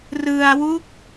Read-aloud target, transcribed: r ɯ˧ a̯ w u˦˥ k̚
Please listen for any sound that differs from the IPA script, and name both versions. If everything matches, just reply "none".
none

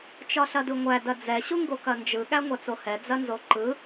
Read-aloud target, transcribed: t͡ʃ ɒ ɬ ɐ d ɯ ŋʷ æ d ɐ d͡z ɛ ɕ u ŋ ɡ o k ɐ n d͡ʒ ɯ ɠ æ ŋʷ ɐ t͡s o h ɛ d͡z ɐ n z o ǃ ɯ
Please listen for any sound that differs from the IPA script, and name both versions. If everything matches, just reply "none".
none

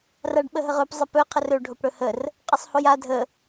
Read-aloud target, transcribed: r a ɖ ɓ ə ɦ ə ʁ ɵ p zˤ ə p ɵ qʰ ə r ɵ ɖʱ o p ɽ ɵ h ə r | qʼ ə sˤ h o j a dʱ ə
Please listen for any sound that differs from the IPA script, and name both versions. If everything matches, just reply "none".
none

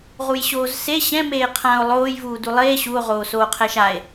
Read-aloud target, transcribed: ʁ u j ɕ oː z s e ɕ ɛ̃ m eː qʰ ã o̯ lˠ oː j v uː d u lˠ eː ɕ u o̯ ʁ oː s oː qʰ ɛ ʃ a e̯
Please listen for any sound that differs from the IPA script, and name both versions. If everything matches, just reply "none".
none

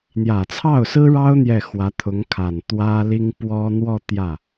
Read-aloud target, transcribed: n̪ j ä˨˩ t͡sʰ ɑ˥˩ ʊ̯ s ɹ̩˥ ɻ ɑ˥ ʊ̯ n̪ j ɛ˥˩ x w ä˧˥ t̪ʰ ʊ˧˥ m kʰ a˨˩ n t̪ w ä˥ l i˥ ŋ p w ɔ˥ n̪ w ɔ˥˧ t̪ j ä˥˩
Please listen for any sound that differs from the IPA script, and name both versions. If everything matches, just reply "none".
m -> ŋ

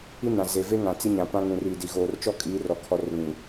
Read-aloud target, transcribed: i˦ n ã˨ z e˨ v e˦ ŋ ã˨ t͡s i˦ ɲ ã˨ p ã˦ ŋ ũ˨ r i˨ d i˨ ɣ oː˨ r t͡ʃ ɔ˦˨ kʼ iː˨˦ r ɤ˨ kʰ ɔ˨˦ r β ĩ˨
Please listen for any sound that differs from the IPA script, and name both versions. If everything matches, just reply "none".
ɤ˨ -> ɔ˨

